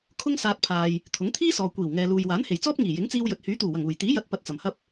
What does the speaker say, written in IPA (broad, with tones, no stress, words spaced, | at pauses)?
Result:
kʰʊ˥ŋsaː˧t̚pʰaː˨j | t̪ʰʊ˨˥ŋt̪ʰiː˥sɔː˨ kʷiː˨˩wŋɛː˨luː˨j waː˨˥nhe˨˩jt͡sɔː˥p̚ ŋiː˨˩jɪ˨˥ŋt͡siː˧w jɵ˨t̚hyː˨˥t̪uː˨˩wɐ˨˩ŋ uː˨˩j t̪iː˨˥jɐ˨˥t̚pɐ˨t̚ t͡sɐ˨˩mhɐ˥p̚